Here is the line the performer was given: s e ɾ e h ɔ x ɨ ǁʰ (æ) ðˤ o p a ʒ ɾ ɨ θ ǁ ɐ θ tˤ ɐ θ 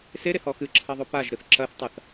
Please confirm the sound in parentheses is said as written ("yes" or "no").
no